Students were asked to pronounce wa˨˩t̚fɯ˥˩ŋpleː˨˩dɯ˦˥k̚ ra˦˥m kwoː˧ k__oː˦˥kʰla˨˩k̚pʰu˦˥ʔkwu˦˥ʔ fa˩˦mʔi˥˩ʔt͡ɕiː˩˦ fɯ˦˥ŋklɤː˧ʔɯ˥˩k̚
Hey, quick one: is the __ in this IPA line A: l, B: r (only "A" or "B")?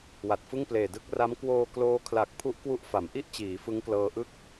A